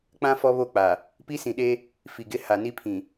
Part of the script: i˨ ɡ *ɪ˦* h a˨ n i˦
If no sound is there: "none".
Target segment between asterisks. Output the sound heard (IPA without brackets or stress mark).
ɪ˦